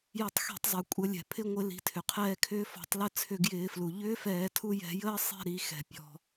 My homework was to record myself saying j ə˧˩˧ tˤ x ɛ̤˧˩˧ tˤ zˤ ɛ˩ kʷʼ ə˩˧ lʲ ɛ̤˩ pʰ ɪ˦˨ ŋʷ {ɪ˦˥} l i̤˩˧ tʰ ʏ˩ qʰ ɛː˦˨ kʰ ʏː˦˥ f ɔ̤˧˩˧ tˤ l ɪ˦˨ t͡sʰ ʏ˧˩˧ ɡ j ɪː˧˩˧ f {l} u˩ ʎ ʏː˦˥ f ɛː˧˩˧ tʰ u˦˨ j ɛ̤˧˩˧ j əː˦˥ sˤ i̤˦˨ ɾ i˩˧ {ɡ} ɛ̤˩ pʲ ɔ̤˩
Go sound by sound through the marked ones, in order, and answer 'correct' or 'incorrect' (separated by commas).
incorrect, correct, incorrect